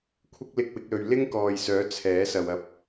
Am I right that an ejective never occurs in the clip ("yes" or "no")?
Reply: yes